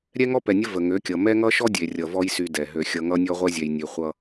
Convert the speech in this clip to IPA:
ɾʲ ɛ˦ ŋ ɔ˦ p ɛ˨ nʲ ə˦ v ə˨ ŋ ø˨˦ kʲ ʌ˨ m ɛ˦ ŋ ʌ˦ ʃ ɔ˦ dʲ e˨ rʲ ʌ˨ v ɔ˦ j s y˦ d ɛ˨ ɦ ø˦ xʲ ʌ˦ ŋ ʌ˦ nʲ ɔ˦ ʁʷ ɛ˦ zʲ ɛ˨ j nʲ ø˨ χʷ ʌ˦

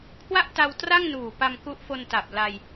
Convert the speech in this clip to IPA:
kʰ w a˥˩ ʔ t a˧ w t r a˥˩ ŋ n uː˨˩ p a˧ m k u˦˥ ʔ f o˧ n t a˨˩ p̚ l a˧ j

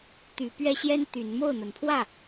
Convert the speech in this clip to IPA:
t̪ y˨˦ p ɥ ɛ˦ ɕ j ɛ˦ n t̪ y˨˦ n m o˥˨ ʊ̯ n̪ ə˨˦ n pʰ w ä˥˨

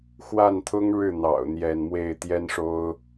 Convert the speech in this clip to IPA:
x w a˥˩ n t̪ʰ ʊ˥ ŋ ɻ ɻ̩˥˩ n̪ ɑ̰˨˩ ʊ̯ n̪ j ɛ˥˧ n m w e˥˩ ɪ̯ t̪ j ɛ˥ n ʂ o˥ ʊ̯

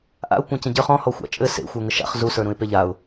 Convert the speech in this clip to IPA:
ʔ a̰ ʊ̯ kʷ ã c ə̃ ɟ ə˞ χ ɔ̃ h ɔ xʷ a̰ t͡ʃʼ ɘ s ḛ xʷ ə˞ ŋ ə ʃ a̰ χ z u s ə˞ ɾ ũ ɪ̯ p e ʎ a ʊ̯

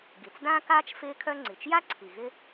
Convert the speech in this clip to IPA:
ɡ i˩ t͡s d ãː˥ k aː˥ t͡ʃ f ɪː˥ kʰ œ˥ ŋ͡ǀ i˩ t͡ʃ j a˥ ǀʰ i˩ ɣ ɪ˥

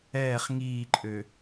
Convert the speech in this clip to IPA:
ɛː χ ŋ iː ǃʼ ø

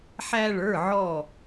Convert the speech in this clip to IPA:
ħ æ˧ ɭ ə˞˩˧˩ ʕ ɔ˧˩

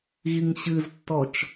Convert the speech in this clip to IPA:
ɣ i ŋ ɕ ɨ z tː ɔ t͡ʃ

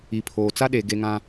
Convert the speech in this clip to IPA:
i˨ pʰ oː˨ t͡s a˦ ɗ eː˨ ɡ e˦ ŋ ã˦

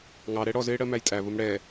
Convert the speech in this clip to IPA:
ŋ ɑ ɾ ɛ ɽ ɔ z ɪː ɽ ɜ m æ j tʼ æ v ʊ m ɽ ɛ

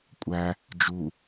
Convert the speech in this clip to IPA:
kʷʼ æ | d͡ʒ u

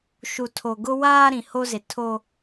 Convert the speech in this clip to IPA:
ʃ u˨ tʰ o˨ ɡ ʊ˦ w aː˦ ɾ ĩ˨ h o˦ z e˨ tʰ o˦

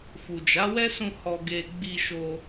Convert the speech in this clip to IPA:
f u˨ d͡ʒ a˨˦ w ɛ˦ s ũ˧ h ɔ˨ ɡ e˨ ɡ͡b i˧ ʃ o˧

